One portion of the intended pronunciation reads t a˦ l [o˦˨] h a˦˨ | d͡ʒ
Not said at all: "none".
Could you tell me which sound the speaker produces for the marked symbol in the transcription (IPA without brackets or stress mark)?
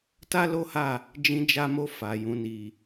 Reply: o˦